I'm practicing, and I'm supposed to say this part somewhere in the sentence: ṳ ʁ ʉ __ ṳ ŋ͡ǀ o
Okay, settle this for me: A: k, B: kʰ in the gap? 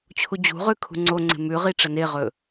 B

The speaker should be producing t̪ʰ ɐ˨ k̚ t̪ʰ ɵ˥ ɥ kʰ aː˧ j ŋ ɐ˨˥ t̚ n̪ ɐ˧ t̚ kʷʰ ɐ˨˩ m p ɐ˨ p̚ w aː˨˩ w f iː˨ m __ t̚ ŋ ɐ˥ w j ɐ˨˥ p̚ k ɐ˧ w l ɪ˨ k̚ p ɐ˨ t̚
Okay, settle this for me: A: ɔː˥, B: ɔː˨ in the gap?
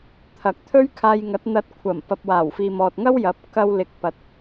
B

